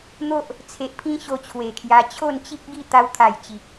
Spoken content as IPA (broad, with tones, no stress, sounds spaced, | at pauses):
n̪ o˦ ʔ | t͡sʰ e˨ ʔ pʰ ĩ˦ ɕ o˧ t͡ɕʰ w e˨˩ kʰ j a˧ t͡ɕʰ o˥˧ n t͡ɕ i˦ k̚ ɡ i˥˧ t̪ a˧ w t̪ʰ a˨˩ j t͡ɕ i˨ k̚